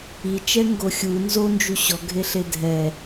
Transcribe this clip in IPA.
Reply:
i t͡ʃ ɛ ŋ ɡ o xʲ u n z o n d͡ʒ u ɕ ɔ ɡʱ e ɬ e dʱ ɛ

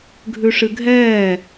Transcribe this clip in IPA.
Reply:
ɡʱ ʉ ʂ ɨ ɡʱ ɛː

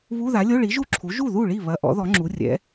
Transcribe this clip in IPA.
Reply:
β u˧˥˧ ð a˩˥ lʲ o˧˥˧ ɭ i˩˥ ʒ u˥˩ ǁʰ u˩˥ ʒ u˥˩ ð u˥˩ ɭ i˥˩ β ɐ˧˥˧ ʔ ɔ̰˩˥ ð ɔ˩˥ ŋ͡ǁ u˩˥ rʲ ɛ̰˩˥

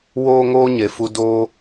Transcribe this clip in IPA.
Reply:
w oː˦ ŋ oː˦ ɲ e˨ f u˧ d oː˦

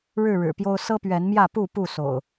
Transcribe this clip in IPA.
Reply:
ɻ ɻ̩˥˨ ɻ ɻ̩˨˩ p j o˦ ʊ̯ s ɤ˦ p ɥ ɛ˨˦ n m j ä˥˨ p u˥˨ p u˥˨ s o̰˨˩ ʊ̯

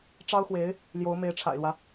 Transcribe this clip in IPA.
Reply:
ʈ͡ʂ ɑ˥ ʊ̯ x w e˧˥ ɪ̯ | l j o˧˥ ʊ̯ m e˧˥ ɪ̯ ʈ͡ʂʰ a̰˨˩ ɪ̯ l w ä˦

